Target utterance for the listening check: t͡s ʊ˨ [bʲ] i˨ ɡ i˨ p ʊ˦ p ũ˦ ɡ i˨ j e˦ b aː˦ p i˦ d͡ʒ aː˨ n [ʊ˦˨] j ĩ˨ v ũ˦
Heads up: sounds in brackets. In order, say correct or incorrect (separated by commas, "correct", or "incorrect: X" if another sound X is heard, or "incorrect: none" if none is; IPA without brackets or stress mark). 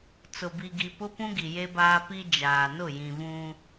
incorrect: b, correct